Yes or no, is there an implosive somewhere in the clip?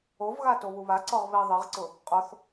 no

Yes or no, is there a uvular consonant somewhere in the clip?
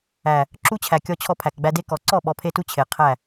yes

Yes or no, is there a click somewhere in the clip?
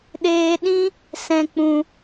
no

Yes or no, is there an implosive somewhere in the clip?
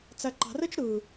no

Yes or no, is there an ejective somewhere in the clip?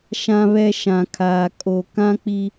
yes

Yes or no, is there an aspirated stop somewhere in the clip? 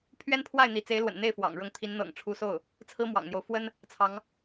yes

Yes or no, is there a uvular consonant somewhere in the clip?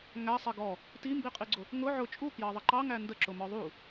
yes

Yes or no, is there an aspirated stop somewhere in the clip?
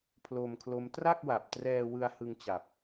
yes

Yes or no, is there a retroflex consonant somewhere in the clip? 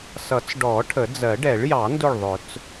yes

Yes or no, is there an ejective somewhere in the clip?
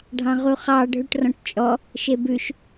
yes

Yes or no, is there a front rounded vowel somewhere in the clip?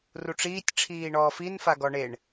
no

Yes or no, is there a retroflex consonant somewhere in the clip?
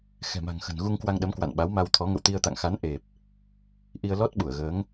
no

